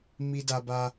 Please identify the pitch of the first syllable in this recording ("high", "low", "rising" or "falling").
high